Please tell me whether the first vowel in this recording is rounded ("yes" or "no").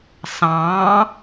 no